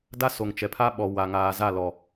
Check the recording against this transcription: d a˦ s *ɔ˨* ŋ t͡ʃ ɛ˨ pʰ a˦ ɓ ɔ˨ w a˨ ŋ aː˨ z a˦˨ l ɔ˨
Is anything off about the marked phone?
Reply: yes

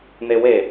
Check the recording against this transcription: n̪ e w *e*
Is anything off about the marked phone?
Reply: no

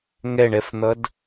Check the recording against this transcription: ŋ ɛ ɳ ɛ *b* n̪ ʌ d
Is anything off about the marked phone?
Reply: yes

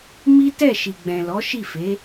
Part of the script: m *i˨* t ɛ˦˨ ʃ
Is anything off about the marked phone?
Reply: yes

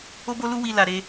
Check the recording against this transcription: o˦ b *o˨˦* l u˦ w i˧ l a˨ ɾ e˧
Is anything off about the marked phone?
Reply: yes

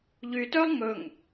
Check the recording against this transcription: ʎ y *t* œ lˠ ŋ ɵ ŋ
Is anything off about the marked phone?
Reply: no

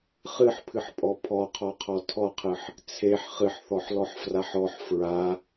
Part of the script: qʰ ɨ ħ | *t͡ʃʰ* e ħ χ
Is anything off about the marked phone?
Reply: yes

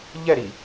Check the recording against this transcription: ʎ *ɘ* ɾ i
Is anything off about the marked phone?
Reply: yes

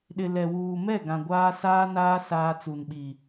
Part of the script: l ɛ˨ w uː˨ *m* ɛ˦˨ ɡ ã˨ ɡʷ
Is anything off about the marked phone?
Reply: no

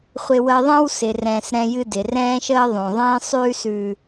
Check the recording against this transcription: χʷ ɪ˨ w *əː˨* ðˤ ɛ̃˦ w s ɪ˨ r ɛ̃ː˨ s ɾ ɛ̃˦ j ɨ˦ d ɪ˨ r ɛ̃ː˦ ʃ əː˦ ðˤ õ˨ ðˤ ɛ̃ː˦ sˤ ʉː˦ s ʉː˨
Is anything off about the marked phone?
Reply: no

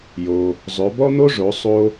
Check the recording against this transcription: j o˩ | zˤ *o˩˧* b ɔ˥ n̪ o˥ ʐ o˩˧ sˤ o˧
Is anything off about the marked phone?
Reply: yes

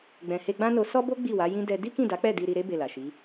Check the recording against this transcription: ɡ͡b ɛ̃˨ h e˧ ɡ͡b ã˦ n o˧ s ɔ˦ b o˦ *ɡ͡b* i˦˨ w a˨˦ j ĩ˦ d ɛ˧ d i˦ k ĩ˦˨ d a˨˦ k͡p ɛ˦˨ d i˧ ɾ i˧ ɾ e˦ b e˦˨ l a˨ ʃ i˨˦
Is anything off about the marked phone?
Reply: no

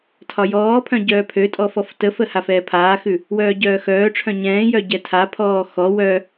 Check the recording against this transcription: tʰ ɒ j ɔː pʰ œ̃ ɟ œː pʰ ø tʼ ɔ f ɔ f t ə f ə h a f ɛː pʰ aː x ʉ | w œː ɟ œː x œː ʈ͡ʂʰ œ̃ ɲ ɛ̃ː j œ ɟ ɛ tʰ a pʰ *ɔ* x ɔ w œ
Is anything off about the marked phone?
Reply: yes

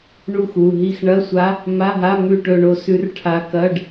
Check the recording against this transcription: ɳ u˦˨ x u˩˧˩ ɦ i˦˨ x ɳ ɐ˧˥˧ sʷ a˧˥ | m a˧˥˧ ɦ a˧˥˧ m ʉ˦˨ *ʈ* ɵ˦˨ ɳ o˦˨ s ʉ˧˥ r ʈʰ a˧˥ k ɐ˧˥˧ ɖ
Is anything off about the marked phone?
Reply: no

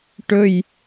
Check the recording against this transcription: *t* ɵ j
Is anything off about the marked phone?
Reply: yes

